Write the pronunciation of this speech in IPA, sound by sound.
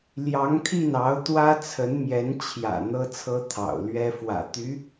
l j ɑ˧˥ ŋ t̪ʰ i˥˩ n ɑ˧˥ ʊ̯ t̪ w ä˥ t͡sʰ ə˧˥ n m j ɛ˧˥ n t͡ɕʰ j ä̰˨˩ n̪ ɤ˥ t͡sʰ ɤ˥ t̪ʰ ɑ̰˨˩ ʊ̯ l ɥ ɛ˥ f w ä̰˨˩ t̪ y˧˥

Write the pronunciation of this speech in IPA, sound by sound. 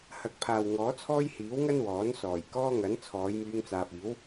h ɐ˨˥ k̚ pʰ aː˨ w ŋ ɔː˨˥ t͡sʰ ɔː˥ j h iː˨˥ w ŋ ɐ˥ n w ɔː˨˥ n s ɔː˨˩ j k ɔː˥ ŋ ɐ˨˥ n t͡sʰ ɔː˨˧ j m yː˧ ŋ t͡s aː˨ p̚ iː˨˥ w

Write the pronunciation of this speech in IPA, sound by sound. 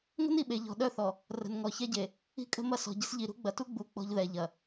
ŋ ə̤˦ n i˨ ɓ e˨ ʎ ɔ̤˨ ɗ œ˦˨ θ ɔ˨ | r ə̤˨ n ŋ ɔ˨ ç ɛ˦ ɟ e˨ | i̤˦ kʼ ə̤˦ m ɐ˦ s ɔ̤˨ ɟ ə̤˦ s ʎ i˨ ɾ ṳ˦ ɡ͡b ɐ˨ t u˦ ɡ͡b u˨ k͡p ɔ̤˦ ʎ ð ɛ˨ ʎ ɐ˨

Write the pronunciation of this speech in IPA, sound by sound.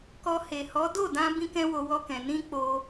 k ɔ˧ h e˨ h ɔ˨˦ d o˦˨ d ã˧ b ĩ˦ k ɛ̃˦ w o˧ w ɔ˧ k ɛ̃˨ n ĩ˧ k͡p o˧

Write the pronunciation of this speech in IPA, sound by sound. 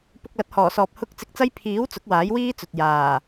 p ʊ˧ k̚ l ɐ˨˥ t̚ h ɔː˨˩ s ɔː˨ p̚ h ʊ˥ k̚ t͡s ɪ˧ k̚ t͡s ɐ˥ j pʰ iː˨˥ w t͡s ʊ˨˥ k̚ w aː˨˥ j w iː˥ t͡s ɵ˨ t̚ j aː˨˩

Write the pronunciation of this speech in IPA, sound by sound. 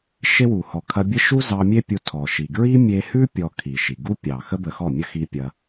ʃ e˦ w u˨ h ɔ˨ kʰ ɐ˧ bʲ ə˦ ʃ u˦ z ɑ˧ mʲ e˦ pʲ u˧ tʰ ɔ˨ ʃ i˨ ɡ ɹ i˦ mʲ e˧ h ʉ˦ pʲ ɔ˧ kʰ i˨ ʃ i˨ ɡ u˦ pʲ ɑ˨ x ə˦ b ə˧ x ɔ˦˨ mʲ ə˦ x i˧ pʲ ɐ˧

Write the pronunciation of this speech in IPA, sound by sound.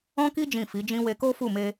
ɔ̃˦ k i˦ d͡ʒ ĩ˦˨ f i˨˦ d͡ʒ ĩ˦ w e˧ k o˦ f u˦˨ m e˧

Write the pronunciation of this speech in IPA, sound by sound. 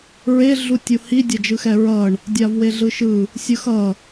ɹ e ɮ u tʲ u h i dʲ ɛ d͡ʒ ɯ x ɛ ɹ ʌ ɳ | dʲ a v w e ɮ ɯ ʃ ɯ | sʲ ɯ x ʌ

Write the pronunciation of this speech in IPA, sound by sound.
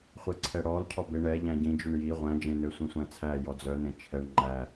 χʷ e ǀʰ ɛ ɽ ɔ l cʰ ɔ b e ɳ ɛ ʎ æ̃ ɟ ĩ d͡ʒ ʉ ɳ j i ʁʷ æ̃ d͡ʒ ẽ n ø sʷ ĩ sʷ æ̃ t͡sʰ æ j ɔ d͡z œ n ẽ t͡ʃʰ ɛ ɳ ŋ͡ǃ æ

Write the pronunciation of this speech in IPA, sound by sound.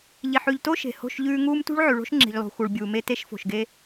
ʎ i˨ ħ ʉ˨ ʎ t o˦ ʃ e̤˨ h o̤˦˨ ʃ ʎ ʉː˦ ŋ uː˦ m t ṳ˦ ɭ ʕ ʉ˨ ɭ o̤˦ ʃ ŋ͡ǁ i̤˨ ʎ lˠ ṳ˨ x u˨ ɭ bʲ uː˨ m e˦ t e˦ ʃ f o̤˨ ʃ ɡ e˦

